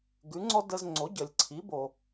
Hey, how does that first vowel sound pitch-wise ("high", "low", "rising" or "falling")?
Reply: rising